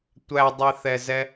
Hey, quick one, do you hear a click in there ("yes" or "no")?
no